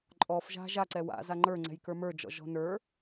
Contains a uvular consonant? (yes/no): no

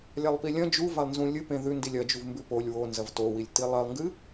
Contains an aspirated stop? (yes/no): no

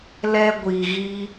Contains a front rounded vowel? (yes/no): no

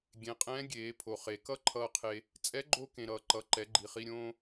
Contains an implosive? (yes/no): no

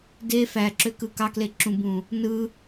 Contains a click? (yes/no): yes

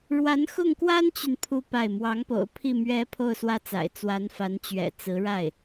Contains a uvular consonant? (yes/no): no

